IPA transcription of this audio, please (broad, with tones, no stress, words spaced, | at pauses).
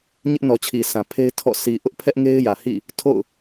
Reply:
ɲɪ˦ʔnɔ˨t͡ɕʰi˨ sã˨ pʰe˦ɪ̯tʰɔ̰˦˨ sʰi˨ ʔʊ˦ʔpʰɛ˦ʔŋe˦ɪ̯ jä˨hḭ˦˨ | tʰo̰˦˨ʊ̯